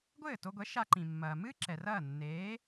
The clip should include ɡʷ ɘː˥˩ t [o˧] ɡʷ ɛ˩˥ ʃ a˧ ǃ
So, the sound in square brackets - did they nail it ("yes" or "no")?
yes